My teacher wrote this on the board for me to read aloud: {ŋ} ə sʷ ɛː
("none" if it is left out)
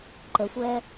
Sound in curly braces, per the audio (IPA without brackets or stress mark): ǃ